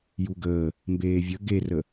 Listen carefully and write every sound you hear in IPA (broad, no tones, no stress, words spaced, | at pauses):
juɡəː | mbeːvʲə ɡerə